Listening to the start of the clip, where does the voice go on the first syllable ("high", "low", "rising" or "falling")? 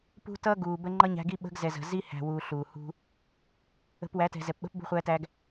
high